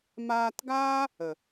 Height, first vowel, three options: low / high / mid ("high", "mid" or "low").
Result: low